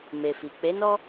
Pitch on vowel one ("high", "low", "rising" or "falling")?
low